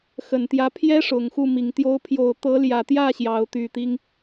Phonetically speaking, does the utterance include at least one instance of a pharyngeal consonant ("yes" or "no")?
no